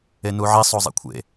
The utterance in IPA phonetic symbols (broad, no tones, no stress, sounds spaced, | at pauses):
e n u ʕ i sˤ o zˤ ḛ kʷʰ ḛ